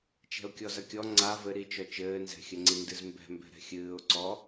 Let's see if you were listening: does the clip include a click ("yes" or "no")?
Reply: yes